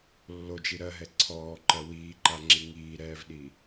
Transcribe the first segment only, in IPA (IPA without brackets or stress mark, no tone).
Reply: lː